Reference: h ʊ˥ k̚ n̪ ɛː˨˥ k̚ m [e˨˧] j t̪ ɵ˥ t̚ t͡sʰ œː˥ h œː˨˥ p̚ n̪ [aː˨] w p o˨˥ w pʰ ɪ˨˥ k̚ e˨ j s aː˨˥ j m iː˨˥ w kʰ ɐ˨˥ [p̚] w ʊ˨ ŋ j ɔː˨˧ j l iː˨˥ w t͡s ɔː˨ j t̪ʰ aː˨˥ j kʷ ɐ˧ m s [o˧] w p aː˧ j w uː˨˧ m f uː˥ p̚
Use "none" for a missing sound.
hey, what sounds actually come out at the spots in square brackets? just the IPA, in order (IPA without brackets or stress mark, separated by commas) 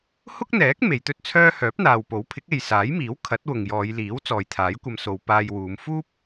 e˨˧, aː˨, t̚, o˨˧